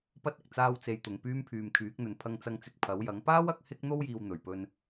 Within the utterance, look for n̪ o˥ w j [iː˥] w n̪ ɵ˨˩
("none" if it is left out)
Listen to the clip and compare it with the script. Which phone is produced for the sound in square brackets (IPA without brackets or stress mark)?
iː˨